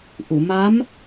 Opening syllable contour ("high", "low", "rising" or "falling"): low